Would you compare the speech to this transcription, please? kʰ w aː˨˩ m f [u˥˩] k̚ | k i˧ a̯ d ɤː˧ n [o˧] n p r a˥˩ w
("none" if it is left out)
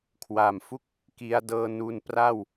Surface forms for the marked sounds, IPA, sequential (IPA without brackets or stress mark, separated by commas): u˥˩, u˧